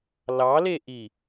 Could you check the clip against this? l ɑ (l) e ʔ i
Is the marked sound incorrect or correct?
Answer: correct